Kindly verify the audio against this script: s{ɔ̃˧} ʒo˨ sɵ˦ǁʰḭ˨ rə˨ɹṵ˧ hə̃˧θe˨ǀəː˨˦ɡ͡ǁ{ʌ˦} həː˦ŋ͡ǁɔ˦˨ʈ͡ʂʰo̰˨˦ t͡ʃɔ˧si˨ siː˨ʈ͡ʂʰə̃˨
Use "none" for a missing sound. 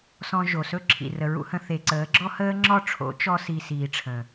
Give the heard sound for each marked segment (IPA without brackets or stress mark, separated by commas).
ɔ̃˧, ɔ˦